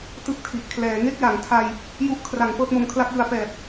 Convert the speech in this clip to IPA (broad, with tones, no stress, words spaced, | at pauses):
tɯ˦˥k̚tʰi˨˩ʔ kʰlɛː˩˦ŋe˥˩k̚ ja˩˦ŋtʰa˧j | ju˦˥ʔ kʰra˩˦ŋ pɤː˦˥t̚mo˧mkʰla˥˩k̚jɯ˧a̯ pɛː˨˩p̚